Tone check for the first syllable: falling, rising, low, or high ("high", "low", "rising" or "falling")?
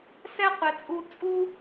high